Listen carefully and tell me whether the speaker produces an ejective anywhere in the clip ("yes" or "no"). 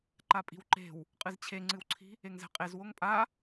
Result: yes